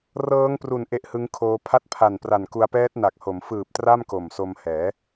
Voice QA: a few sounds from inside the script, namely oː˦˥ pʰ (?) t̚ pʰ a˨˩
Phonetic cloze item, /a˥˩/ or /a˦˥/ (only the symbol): a˦˥